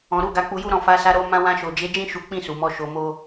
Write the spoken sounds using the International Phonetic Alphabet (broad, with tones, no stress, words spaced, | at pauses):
ɔ̃˨ɾu˧ ɡa˧k͡pu˧ju˦ɾɔ̃˦˨ fa˨˦sa˧ɾo˧ mã˧ wã˧ʃo˨d͡ʒe˨˦d͡ʒĩ˦˨ ʃu˨˦k͡pĩ˦˨su˨ mɔ˧ʃo˧mo˦